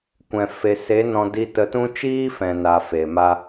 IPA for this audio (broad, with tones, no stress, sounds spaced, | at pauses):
kʷ ɛ̃˨ f e˨ s e˨˦ n ɔ̃˧ d i˧ t ə˧ t ũ˦ t͡ʃ iː˦ f ɛ̃˨ n a˨ f e˨ m a˦